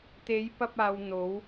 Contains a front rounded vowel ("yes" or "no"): no